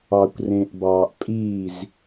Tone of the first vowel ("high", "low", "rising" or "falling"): low